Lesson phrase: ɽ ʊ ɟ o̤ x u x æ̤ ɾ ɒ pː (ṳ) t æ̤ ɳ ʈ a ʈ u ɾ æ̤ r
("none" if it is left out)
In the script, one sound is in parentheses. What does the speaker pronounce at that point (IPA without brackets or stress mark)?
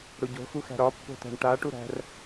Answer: o̤